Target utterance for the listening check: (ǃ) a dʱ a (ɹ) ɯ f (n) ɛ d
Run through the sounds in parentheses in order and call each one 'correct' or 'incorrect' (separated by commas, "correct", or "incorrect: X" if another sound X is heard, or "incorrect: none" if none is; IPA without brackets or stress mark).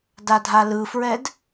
incorrect: d, incorrect: l, incorrect: ɹ